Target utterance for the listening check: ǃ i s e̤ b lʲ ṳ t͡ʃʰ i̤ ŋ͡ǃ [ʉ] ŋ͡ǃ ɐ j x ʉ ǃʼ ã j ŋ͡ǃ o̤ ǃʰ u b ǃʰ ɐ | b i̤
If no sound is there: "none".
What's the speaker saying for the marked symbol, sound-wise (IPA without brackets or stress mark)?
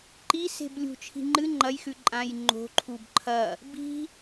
ɨ